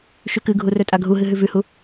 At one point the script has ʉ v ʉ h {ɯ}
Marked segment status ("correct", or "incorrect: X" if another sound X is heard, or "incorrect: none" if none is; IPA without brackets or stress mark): incorrect: u